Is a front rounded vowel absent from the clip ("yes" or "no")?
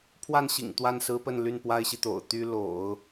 no